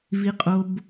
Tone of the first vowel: low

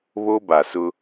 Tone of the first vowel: high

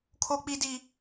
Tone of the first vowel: high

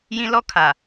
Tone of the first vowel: high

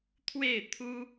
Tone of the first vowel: falling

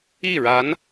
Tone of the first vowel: falling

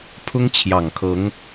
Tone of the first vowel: high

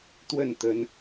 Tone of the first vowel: falling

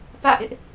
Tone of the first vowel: falling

